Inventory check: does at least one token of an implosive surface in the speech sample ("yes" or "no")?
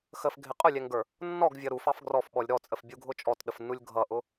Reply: yes